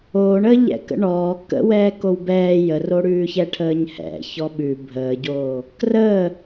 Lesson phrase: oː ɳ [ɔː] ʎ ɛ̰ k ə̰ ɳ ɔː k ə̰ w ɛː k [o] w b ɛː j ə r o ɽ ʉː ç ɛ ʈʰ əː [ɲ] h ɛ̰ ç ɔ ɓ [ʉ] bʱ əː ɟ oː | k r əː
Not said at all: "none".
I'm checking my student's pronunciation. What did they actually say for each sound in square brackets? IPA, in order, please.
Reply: əː, o, ɲ, ʉ

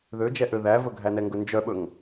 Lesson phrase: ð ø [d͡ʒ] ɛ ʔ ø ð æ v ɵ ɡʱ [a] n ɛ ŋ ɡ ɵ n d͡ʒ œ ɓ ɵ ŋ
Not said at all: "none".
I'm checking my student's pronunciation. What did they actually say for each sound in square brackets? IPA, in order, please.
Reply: d͡ʒ, æ

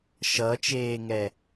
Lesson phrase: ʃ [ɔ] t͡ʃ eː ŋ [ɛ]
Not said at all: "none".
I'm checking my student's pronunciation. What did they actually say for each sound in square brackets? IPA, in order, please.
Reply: ʌ, ɛ

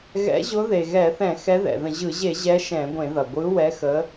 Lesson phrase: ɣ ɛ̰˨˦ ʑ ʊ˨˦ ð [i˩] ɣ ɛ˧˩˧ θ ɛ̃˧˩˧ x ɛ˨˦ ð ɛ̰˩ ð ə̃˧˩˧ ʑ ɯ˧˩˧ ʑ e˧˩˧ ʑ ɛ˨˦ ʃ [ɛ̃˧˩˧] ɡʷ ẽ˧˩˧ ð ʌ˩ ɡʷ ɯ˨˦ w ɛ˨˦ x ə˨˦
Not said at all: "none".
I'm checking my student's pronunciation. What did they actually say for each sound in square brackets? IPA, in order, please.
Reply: e˩, ɛ̃˧˩˧

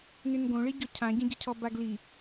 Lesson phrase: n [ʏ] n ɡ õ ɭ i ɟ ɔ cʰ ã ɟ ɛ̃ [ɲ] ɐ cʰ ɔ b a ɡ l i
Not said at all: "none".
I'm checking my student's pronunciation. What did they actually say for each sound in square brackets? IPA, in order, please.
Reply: ʏ, ɟ

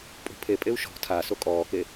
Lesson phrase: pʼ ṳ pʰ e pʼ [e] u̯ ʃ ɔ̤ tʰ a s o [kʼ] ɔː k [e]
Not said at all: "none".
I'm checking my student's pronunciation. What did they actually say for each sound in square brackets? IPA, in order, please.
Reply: e, kʼ, e

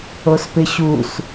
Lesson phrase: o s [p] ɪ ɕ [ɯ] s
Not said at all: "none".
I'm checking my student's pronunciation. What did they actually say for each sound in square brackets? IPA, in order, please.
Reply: p, u

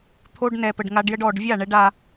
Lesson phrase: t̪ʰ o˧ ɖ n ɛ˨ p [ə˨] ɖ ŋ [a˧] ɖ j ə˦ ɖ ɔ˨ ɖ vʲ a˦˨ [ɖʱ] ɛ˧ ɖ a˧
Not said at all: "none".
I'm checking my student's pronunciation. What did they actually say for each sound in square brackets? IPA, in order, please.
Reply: ə˨, a˧, ɳ

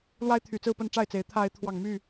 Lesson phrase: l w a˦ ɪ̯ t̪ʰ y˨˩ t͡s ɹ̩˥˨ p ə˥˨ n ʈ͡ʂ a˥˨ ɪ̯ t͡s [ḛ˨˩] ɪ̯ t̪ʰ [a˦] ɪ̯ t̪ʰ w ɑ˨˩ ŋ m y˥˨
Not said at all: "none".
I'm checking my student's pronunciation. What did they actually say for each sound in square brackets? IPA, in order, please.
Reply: e˨˦, a˨˦

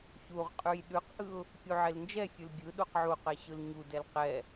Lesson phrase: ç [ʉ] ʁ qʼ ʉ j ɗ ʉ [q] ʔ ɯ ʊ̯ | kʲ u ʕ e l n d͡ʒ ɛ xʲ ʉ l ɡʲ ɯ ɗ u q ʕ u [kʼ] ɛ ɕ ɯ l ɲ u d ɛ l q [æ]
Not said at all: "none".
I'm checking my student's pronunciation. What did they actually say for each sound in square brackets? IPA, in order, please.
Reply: u, q, q, ɛ

